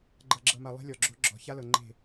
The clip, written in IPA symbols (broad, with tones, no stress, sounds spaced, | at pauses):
ɡ͡ǃ ɤ˨ ɡ͡ǁ ɤ˨ m a˨ lˠ e̤˦ lʲ ɔ˨ ɡ͡ǁ o̤˦ ɡ͡ǁ ɔ̤˨ ç a˦ l ɤ˨ ŋ͡ǃ e̤˦˨